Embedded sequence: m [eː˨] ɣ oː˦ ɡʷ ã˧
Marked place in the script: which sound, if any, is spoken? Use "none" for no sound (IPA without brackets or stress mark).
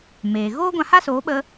eː˨